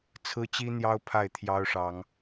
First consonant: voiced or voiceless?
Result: voiceless